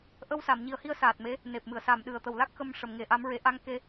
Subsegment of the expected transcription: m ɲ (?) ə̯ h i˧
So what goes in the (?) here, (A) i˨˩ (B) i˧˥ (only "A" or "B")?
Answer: A